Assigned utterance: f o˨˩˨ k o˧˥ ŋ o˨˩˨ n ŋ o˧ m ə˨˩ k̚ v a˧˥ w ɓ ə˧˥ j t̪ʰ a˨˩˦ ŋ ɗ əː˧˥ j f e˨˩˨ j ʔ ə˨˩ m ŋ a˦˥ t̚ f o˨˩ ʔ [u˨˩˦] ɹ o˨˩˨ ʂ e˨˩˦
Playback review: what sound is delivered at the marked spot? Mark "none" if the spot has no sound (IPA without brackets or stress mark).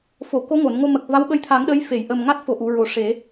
u˨˩˨